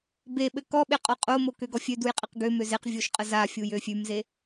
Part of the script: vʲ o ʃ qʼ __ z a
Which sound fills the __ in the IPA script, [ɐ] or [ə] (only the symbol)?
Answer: ə